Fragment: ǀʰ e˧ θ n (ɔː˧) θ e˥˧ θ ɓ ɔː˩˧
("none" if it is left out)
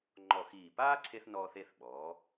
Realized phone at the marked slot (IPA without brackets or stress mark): ɔː˧